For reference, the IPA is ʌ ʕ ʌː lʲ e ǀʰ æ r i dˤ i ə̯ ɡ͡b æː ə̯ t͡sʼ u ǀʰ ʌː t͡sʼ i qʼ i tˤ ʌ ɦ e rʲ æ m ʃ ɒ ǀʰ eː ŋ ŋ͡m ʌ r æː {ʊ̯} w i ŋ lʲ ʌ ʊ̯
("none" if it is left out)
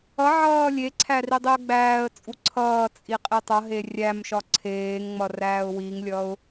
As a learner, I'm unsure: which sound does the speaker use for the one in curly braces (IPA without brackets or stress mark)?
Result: ʊ̯